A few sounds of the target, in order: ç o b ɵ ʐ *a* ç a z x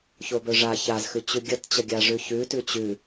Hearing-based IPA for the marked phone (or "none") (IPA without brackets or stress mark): a